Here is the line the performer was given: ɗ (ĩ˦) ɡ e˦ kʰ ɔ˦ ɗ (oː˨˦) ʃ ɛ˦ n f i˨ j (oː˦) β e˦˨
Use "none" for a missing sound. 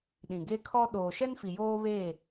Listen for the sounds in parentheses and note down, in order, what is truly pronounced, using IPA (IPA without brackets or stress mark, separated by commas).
ĩ˨, oː˨, oː˦